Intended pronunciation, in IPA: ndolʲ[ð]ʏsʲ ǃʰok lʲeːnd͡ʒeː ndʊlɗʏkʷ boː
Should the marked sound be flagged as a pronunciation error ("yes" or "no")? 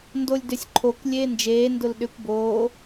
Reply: yes